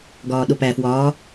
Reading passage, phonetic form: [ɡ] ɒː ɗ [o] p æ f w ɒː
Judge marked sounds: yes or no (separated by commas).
yes, yes